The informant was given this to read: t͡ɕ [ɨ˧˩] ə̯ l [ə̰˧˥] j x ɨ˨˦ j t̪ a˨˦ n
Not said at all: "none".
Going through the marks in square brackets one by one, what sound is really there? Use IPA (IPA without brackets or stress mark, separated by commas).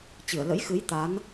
ɨ˧˩, ə̰˧˥